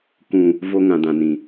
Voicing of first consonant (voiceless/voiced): voiceless